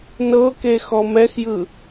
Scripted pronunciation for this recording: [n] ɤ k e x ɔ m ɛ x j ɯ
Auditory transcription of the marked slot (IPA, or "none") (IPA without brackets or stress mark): n